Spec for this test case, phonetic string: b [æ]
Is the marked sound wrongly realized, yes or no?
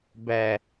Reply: no